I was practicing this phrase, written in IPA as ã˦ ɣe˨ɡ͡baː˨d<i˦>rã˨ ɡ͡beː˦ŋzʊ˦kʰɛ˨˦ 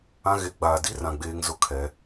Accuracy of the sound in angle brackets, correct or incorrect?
correct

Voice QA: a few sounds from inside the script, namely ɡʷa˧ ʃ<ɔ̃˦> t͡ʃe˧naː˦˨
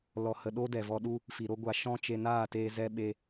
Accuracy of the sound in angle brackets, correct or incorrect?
correct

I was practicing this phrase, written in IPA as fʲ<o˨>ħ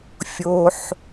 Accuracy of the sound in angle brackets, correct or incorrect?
correct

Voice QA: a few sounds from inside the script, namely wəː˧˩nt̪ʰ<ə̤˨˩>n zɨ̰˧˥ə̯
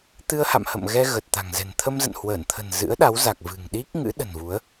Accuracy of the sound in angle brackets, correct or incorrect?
correct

